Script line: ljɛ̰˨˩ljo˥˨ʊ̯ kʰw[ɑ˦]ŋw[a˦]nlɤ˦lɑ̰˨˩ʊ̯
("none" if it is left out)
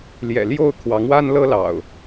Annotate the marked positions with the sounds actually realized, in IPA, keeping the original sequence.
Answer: ɑ˨˦, a˦

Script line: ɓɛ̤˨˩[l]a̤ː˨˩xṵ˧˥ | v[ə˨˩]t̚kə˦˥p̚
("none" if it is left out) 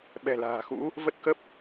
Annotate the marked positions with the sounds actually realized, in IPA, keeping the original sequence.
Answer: l, ə˦˥

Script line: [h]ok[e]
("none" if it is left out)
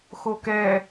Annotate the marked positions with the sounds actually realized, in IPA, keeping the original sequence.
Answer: x, ɛ

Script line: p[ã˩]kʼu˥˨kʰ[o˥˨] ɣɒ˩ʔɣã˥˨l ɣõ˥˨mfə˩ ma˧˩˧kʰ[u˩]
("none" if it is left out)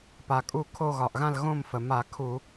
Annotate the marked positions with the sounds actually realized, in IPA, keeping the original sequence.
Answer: a˩, o˥˨, u˧˩˧

